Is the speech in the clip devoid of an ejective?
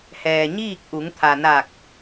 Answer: yes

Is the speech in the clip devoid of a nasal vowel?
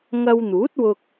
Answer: yes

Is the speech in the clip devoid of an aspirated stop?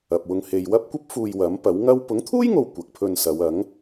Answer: no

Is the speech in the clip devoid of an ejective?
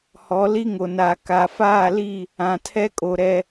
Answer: no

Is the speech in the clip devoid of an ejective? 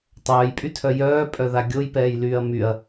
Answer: no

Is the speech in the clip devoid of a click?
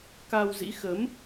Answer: yes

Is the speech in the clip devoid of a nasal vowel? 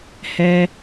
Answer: yes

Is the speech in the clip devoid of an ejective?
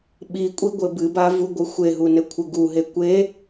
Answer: no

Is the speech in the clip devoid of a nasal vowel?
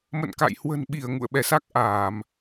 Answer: yes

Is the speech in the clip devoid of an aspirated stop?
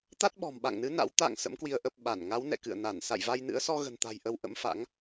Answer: yes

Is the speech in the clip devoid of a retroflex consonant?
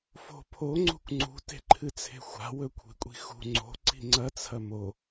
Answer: yes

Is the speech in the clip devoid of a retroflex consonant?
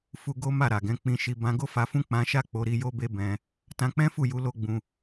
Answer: yes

